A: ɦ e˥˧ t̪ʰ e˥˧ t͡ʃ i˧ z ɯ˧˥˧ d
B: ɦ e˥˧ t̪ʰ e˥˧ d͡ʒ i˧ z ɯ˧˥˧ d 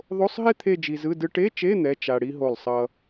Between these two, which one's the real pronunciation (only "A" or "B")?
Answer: B